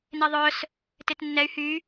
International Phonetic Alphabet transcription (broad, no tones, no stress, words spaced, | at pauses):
neðˤœs | tetnːɛy̯ hy